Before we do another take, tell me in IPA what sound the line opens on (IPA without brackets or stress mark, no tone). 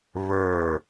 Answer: β